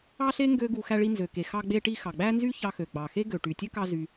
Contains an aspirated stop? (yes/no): no